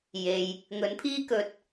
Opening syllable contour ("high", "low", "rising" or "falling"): low